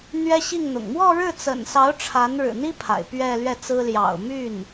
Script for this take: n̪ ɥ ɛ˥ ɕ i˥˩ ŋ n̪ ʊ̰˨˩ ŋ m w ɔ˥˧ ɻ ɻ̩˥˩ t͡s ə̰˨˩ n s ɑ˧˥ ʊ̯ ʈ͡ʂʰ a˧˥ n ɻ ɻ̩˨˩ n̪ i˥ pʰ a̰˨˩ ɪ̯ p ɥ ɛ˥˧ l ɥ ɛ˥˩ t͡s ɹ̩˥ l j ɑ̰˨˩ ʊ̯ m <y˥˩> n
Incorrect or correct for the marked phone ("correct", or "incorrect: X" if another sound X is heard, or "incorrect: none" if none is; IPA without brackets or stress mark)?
correct